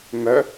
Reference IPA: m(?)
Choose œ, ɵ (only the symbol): œ